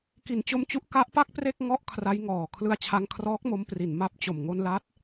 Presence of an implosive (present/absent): absent